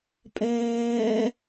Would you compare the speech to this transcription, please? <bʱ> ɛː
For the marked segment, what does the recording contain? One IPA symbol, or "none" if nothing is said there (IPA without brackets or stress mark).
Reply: pʼ